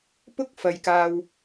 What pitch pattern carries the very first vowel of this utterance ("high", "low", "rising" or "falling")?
high